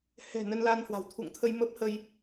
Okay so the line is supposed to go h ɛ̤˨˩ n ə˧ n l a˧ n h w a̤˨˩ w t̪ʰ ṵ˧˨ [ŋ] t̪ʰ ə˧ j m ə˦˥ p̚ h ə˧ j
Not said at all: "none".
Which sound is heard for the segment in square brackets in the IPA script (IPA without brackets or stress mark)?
ŋ